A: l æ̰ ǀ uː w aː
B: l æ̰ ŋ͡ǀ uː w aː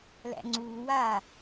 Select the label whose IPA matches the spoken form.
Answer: B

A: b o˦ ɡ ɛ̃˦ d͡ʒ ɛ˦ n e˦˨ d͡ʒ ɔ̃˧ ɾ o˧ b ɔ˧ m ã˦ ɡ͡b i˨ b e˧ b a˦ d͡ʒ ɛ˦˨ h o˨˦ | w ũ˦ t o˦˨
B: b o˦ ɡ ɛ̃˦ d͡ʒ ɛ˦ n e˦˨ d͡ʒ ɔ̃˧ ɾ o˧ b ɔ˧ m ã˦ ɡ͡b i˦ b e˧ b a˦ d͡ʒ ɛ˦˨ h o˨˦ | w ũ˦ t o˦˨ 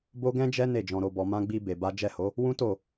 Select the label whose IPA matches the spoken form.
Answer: B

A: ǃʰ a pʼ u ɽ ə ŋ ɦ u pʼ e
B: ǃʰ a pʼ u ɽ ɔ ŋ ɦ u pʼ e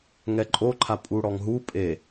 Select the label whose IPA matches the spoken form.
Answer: B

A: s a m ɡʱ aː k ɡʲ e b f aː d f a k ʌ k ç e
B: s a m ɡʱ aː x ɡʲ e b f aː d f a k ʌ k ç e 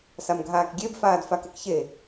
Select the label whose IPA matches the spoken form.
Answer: A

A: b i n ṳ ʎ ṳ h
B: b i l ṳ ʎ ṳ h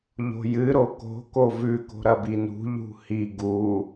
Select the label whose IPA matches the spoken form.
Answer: A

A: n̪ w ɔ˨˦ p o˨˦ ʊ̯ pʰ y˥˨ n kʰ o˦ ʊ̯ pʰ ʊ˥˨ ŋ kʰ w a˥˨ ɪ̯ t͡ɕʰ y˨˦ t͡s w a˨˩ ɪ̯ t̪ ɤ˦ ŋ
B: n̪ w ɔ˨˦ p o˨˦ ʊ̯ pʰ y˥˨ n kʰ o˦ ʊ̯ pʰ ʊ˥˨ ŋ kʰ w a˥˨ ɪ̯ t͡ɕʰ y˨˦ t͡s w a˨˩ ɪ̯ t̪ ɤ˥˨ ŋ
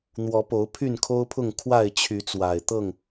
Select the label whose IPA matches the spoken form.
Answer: B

